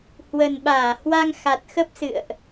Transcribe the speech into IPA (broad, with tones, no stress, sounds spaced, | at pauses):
h w ə˨˩ n ɓ aː˧˩ h w a˧ ŋ x a˨˩ t̚ x ə˦˥ p̚ s ɨ̰˧˨ ə̯ ʔ